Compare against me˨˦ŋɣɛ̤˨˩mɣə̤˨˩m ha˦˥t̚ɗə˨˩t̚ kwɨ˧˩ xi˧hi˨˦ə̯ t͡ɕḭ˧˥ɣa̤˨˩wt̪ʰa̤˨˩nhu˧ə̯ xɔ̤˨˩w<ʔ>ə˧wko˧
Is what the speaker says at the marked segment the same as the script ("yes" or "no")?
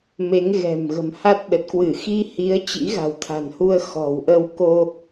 yes